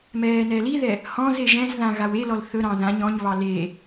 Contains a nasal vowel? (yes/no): yes